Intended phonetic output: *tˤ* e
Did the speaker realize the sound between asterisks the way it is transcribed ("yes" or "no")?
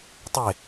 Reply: yes